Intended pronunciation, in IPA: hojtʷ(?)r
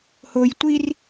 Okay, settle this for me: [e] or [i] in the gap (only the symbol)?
i